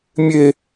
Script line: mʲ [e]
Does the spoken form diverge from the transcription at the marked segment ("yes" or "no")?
no